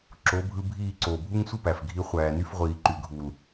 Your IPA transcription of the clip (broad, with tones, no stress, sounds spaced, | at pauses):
ǁ o˨˦ bʱ ɯ˧ bʱ iː˦˨ ǀ oː˨ bʱ u˦ ŋ sʷ ɯ˦ p æ˨ f ɡʱ i˧ χʷ æː˨ n y˧ f ʁʷ iː˨ ǃ y˨ ɡʱ u˨ l